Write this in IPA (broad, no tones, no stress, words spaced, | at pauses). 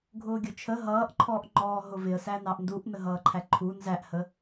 ɡʱʊːɡʲʊt͡ʃʰə ɦʌːʔǃʰɔːʔ ŋ͡ǃɔːɦʊvɪə̯ sænɑʔnduʔ nəɦʌːǃʰæǃʰu nzæʔhə